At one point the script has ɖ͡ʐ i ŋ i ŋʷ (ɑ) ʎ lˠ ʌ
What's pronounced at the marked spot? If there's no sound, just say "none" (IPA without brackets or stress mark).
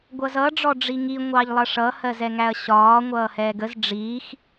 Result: ɑ